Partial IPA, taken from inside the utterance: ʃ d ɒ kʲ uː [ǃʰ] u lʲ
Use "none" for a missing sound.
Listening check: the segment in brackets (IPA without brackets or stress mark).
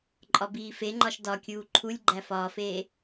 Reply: ǃʰ